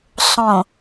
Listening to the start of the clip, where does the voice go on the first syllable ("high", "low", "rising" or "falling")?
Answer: low